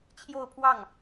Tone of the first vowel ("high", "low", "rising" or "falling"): falling